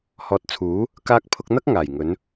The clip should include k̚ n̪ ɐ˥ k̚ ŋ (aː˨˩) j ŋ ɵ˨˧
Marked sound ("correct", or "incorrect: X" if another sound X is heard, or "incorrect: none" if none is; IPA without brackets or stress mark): correct